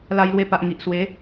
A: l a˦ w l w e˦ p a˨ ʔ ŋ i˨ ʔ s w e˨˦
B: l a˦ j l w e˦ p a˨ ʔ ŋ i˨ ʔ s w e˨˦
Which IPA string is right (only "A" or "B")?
B